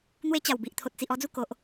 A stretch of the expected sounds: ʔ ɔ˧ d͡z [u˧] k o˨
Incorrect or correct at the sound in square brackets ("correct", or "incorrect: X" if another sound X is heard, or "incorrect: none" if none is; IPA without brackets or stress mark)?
correct